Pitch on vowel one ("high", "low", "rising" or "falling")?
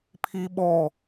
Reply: high